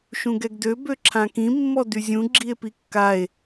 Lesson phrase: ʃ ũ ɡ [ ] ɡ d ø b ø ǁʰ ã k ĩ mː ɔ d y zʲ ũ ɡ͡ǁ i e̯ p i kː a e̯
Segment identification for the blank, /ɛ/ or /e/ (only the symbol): ɛ